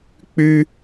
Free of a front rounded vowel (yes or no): no